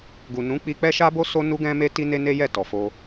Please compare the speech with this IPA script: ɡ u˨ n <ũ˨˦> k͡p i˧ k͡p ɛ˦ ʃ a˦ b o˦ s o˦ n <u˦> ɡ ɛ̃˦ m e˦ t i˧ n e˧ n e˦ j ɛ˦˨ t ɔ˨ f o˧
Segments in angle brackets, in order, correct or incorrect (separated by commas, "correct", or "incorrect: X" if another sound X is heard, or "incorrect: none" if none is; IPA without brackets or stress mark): correct, correct